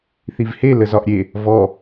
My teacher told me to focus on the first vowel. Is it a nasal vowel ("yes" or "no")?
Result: no